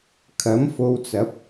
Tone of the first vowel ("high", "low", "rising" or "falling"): rising